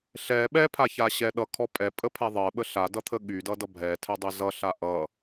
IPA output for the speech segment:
ɬ ɛ ɓ ɛ pʰ a ç a ɕ ɛ ɗ ʌ kʰ ɔ pʼ ɛ pʼ ə pʰ ɛ ðˤ ɜ ɓ ə ɬ a d ʌ t̪ʰ ə ɠ y d ʌ d ʌ bʱ ɛ tʰ ɛ dˤ e z ʌ ɬ a ʔ ʌ

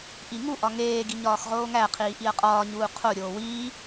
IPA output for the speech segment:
ʔ i ŋ u ʔ ɒ ŋ eː ɡ i ɲ ɒː x ʁ oː ŋ æ qʰ iː ʔ i ɐ̯ qʼ ɒː ɲ uː qʰ o ɾʲ oː w iː

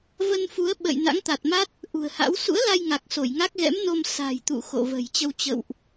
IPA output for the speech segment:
v ə˧ n f u˨˦ ə̯ ɓ ə̰˧˨ j n a̰˧˥ ŋ t̪ a˨˩ t̚ m a˦˥ t̚ | ʔ ṳ˨˩ ə̯ h a̰˧˥ w s ṵ˧˥ ə̯ l a˧ j ŋ a˨˩ k̚ s o˧˩ j ŋ a˦˥ k̚ ɣ ɛ̰˧˥ m n o˧ m s a̤˨˩ j t̪ ṵ˧˨ x o̰˧˨ v ə̤˨˩ j t͡ɕ ə˧ w t͡ɕ ə̰˧˨ w ʔ

